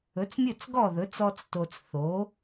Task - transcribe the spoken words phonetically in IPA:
ɵ˩˥ t͡s mʲ ɵ˥˩ t͡s ɡ ɔ˥˩ ð ɵ˩˥ t͡s ɔ˥ t͡s t o˧ t͡s θ o˩˥

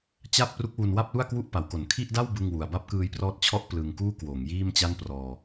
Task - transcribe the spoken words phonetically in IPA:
t͡ɕ a˥˩ p̚ r u˦˥ k̚ w u˧ n w a˥˩ p̚ l u˥˩ a̯ k w u˥˩ ʔ p a˩˦ w k o˨˩ n kʰ i˥˩ ʔ d a˥˩ w b ɯ˥˩ ŋ w u˧ a̯ b a˥˩ p̚ k ɯː˦˥ j p r ɔː˦˥ t̚ t͡ɕʰ ɔ˥˩ ʔ p l ɯ˧ ŋ k uː˥˩ k w oː˩˦ ŋ j iː˥˩ m t͡ɕ a˥˩ n p r ɔː˧

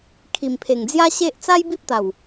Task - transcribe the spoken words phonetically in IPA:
kʰ i˨˩ m pʰ e˨˩ ŋ d͡z j a˦ ɕ e˦ ʔ t͡s a˦ j b i˦ p̚ t̪ a˨˩ w

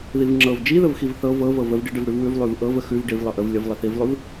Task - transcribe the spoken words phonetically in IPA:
ð i v ŋ͡ǁ ɤ v d͡ʒ i ð ə v x i v θ ɤ v ɤ v ɤ v ə v ɖ i ɖ ə v ɽ ʉ v w ʉ v lˠ ʉ v ʔ ɤ v ə x ʉ v ɖ i v lˠ ɤ ʔ ə v lʲ ə v lˠ ə θ i v lˠ ʉ v

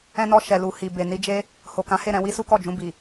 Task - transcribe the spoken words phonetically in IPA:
ɛ̃˧ n ɔ˧ ʃ ɛ˨ l u˨ h i˨ b e˨ n i˧ d͡ʒ e˦ | h o˨ k ã˨˦ h e˦˨ ɾ ɛ̃˧ w i˦ s u˦ k ɔ˦˨ d͡ʒ ũ˧ b i˨

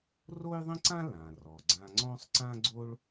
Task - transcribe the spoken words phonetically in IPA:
r o˥ j ðˤ ə̃˥ ǀ ã˥ l ã˩ r ɔ˩ ɡ͡ǀ ã˧ ŋ͡ǀ ɔ̃˥ sˤ ǀ ã˥ ɡ͡ǀ o˥ ɭ

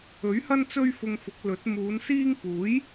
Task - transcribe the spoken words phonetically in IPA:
ɵ˨˥ ɥ h ɐ˥ n t͡s ɵ˥ ɥ f ʊ˧ ŋ f ʊ˨˥ k̚ l ɵ˨˥ t̚ m uː˨˧ n s iː˥ ŋ p uː˨˥ j

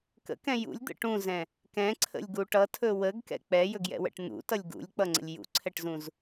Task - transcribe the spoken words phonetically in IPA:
k ə̰ k ɛ̃ j ṵ lʲ d̪ ə̰ ʈ ũ z ɛ̃ | k ɛ̃ ǀʰ ə̰ lʲ ɡ u ʈ ʌ tʰ ɵ w ə ɡ k ɛ̰ k͡p ɛ j ɵ ɡ j ɛ̰ w ɛ̰ ʈ n̪ ṵ t ʌ lʲ ɡ ṵ lʲ k͡p ʌ ŋ͡ǀ ə̰ lʲ j ṵ ǀʰ ɛ ʈ z ũ z

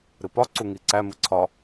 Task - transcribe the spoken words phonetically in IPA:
ɾ ɨ p ɒ ǀ u ŋ i ǀ æ m ɨ ǀʰ ɒ

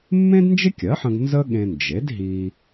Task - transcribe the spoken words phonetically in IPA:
mː ẽ˥ d n d͡ʒ ɪ˥ kʲ ɜ˩˥ ħ ə̃˧ ɡ n z ə˥ ɠ ẽ˧ n d͡ʒ e˩˥ d ɦ i˧

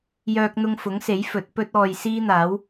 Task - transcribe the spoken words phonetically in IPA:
j œː˥ k̚ n̪ ʊ˥ ŋ f ʊ˨˥ ŋ s e˨˥ j f ɵ˨˥ t̚ p ɵ˥ t̚ ɔː˧ j s iː˥ n̪ aː˨˥ w

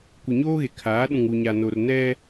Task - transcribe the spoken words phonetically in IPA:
kʷ ɪ˨ ɲ oː˦ ɣ e˨ kʰ aː˨˦ ɗ ũ˨ ŋ u˨ ɲ a˨ n o˨ r n ɛ˦

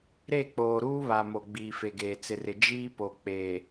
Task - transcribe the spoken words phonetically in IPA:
ɾ e˦˨ k͡p oː˨ ɾ uː˦ β a˨ m o˨ ɡ͡b iː˨ f e˨ ɡ eː˨ t͡s ɪ˨ r ɪ˨ d͡ʒ iː˦ p o˨ k͡p eː˨

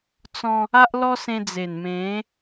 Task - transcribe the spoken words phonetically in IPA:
t͡s ɔ̃˧ | a˦ ʔ l ɔ˦ s ẽ˧ d͡z e˨˩ n m ẽ˨˦

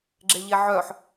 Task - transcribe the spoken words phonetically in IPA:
ɡ͡ǁ e ʎ e ʕ œ ħ

